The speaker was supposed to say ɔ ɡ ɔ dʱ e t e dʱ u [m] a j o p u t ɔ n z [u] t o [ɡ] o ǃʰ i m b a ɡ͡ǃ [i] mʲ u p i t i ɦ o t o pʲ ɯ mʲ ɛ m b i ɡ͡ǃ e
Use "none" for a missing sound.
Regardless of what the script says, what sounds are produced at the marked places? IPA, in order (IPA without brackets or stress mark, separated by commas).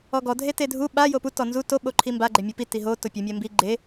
ɓ, u, ɓ, e